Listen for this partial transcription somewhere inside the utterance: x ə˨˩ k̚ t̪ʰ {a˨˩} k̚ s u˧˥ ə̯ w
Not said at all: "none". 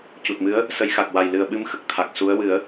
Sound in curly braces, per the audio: a˨˩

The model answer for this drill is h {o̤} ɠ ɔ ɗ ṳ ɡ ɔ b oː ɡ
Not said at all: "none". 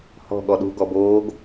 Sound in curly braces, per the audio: ɔ̤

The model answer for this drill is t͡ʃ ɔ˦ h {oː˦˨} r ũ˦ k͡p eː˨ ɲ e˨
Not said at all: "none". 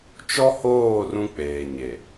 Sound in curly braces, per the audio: oː˦˨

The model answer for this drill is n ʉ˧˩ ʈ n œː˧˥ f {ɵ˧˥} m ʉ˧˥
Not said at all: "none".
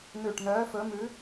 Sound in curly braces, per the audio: ɵ˧˥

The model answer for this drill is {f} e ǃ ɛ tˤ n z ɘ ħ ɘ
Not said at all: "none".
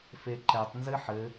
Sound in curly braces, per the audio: f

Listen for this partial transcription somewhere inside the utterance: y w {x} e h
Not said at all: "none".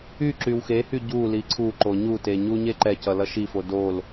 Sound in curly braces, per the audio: x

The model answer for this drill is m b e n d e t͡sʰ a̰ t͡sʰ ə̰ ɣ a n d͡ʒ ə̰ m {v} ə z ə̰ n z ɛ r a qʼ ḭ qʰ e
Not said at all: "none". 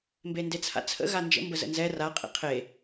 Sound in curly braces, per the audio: b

